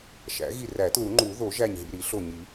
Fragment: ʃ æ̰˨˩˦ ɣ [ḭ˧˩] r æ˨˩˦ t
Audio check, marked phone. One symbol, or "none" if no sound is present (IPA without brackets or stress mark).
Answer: i˧˩